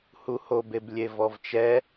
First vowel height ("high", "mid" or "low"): high